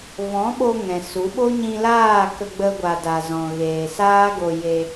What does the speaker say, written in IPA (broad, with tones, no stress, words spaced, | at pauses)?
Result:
vɔ̃˨˦ɓo˧ ŋɛ̃˨su˨˦ ɓo˦ɲĩ˧laː˦˨ kə˧ɡ͡bə˧ɡʷa˨ da˨zɔ̃˨ ɣeː˨saː˦ɡo˧ je˧